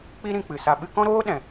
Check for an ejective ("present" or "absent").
absent